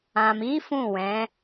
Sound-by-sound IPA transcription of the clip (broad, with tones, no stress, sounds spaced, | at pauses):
ã˨ m i˨˦ f ũ˦˨ w ɛ̃˨˦